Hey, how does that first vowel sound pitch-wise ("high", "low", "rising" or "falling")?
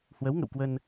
rising